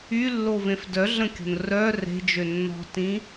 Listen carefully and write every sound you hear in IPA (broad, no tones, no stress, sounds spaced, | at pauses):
y lː o v ẽ f d œ ɮ ə̃ kʲ o̤ n r œ r e̤ d͡ʒ ø nː ɔ̤ t ĩ